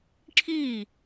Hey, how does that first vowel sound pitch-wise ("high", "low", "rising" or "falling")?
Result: falling